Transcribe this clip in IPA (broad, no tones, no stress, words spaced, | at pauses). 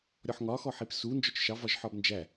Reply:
ɾʲɔħŋɒ xɔħipsu nd͡ʒɔt͡ʃʃɑ vɒʒħɒbnd͡ʒæ